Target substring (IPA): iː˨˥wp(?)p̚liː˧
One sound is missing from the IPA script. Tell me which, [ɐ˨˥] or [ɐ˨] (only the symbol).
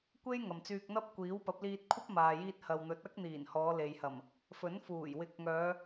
ɐ˨˥